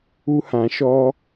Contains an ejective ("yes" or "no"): no